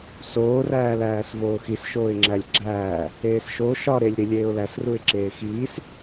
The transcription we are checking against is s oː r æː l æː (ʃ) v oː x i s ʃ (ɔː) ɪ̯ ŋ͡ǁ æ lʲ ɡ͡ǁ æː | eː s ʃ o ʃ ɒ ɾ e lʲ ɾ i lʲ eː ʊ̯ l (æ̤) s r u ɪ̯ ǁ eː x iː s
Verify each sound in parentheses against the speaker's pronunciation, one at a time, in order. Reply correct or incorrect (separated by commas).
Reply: incorrect, incorrect, incorrect